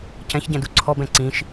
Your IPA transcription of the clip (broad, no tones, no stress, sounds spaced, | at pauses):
c ɛ̃ ç ɟ ɛ̃ d u ǀʰ ɔ b ɛ̃ ǀ ĩ ʃ